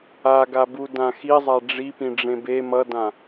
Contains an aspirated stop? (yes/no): no